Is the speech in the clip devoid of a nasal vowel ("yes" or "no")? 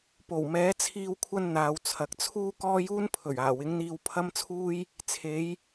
yes